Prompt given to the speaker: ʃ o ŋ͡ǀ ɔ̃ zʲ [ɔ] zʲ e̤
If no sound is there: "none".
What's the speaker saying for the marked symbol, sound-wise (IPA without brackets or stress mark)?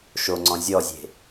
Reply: ɔ